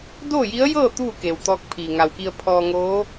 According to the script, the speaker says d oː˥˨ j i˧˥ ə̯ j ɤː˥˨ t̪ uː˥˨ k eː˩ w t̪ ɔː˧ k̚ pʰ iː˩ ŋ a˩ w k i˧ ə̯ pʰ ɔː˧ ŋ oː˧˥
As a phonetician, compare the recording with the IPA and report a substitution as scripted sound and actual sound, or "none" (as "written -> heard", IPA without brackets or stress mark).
none